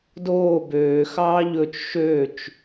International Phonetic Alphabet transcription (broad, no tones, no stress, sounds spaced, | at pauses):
d oː b øː x ɑː ʎ ɵ t͡ʃ ʃ ø t͡ʃ